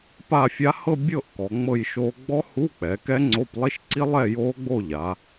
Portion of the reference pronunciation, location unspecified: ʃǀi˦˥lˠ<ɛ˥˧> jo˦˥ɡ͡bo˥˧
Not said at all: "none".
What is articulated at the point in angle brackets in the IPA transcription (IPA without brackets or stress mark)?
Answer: ɛ˥˧